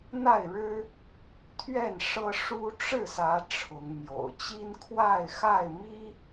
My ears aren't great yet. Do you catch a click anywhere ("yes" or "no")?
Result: no